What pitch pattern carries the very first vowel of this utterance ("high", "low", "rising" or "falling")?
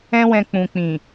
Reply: high